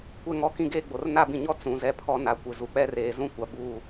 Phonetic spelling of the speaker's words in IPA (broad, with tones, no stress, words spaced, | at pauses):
kʷɛ˦ŋɔ˦ kĩ˦ɡeː˦ɡ͡bo˨r na˦bĩ˨ɲɔ˦ t͡sũ˨ zɛ˦pʰɔ˦na˨kʷɪ˨ zu˨k͡pɛ˦reː˨ zũ˦kʷa˨ buː˦˨